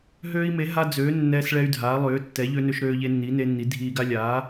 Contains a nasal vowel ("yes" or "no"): no